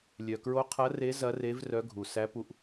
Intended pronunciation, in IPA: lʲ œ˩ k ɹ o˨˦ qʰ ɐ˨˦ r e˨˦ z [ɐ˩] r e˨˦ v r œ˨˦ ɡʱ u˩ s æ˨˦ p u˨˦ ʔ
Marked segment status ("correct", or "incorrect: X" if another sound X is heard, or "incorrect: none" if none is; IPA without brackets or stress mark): incorrect: ɐ˨˦